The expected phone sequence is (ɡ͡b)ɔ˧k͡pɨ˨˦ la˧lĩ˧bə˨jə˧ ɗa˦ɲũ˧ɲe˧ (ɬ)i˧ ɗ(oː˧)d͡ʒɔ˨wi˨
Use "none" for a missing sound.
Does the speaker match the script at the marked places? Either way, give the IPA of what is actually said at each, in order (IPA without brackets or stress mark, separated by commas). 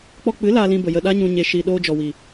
k͡p, ʃ, oː˧